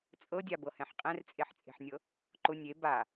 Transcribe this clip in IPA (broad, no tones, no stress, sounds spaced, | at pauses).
t͡sʼ ɤ dʲ a b ɤ h ɛ̃ ħ qʼ ɛ̃ r t͡sʼ e ħ t͡sʼ e̤ ħ nʲ ɤ | ǃ ʊ nʲ e b a